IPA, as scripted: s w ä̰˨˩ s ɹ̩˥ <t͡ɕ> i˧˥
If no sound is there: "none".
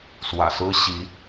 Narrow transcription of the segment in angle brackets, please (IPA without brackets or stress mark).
ɕ